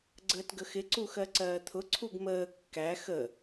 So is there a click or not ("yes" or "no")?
yes